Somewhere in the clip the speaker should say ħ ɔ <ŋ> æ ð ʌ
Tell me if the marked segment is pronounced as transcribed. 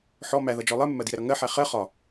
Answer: no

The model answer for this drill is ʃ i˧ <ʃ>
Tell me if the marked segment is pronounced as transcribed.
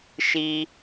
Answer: no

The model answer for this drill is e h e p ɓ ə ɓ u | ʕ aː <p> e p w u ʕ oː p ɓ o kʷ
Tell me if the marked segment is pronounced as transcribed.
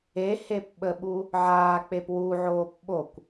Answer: no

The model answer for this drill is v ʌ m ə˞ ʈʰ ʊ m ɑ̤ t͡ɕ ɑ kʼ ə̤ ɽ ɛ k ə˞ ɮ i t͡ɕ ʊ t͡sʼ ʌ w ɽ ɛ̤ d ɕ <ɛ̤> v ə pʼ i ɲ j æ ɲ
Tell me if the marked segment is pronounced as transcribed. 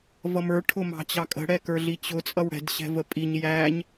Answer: yes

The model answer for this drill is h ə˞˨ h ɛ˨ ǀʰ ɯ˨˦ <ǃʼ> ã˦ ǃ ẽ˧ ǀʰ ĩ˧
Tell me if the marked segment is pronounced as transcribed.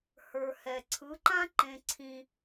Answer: no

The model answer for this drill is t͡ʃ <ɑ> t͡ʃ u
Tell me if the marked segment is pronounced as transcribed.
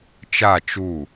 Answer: no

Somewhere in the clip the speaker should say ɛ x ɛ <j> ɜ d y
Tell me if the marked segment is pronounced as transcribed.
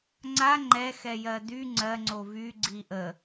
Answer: yes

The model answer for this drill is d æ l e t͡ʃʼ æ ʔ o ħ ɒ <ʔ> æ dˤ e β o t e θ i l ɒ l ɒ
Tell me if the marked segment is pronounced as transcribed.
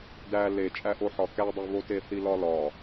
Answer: no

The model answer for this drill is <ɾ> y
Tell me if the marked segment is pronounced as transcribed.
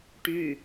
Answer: no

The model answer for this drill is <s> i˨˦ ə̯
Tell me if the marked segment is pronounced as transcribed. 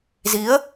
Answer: no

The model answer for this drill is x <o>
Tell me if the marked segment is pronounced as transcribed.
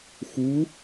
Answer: no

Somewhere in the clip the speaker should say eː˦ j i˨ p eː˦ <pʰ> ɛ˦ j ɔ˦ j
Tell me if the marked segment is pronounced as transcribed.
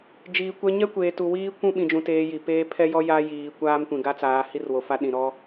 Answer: yes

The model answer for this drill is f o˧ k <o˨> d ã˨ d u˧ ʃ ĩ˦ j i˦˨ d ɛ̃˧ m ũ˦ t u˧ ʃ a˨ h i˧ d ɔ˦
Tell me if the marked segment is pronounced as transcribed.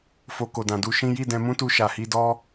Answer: yes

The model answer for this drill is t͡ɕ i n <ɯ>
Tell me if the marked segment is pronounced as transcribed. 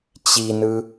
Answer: yes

